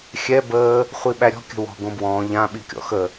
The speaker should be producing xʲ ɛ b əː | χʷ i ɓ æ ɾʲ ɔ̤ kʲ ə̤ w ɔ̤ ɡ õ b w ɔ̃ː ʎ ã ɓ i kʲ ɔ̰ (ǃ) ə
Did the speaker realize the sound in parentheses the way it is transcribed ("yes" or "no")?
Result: no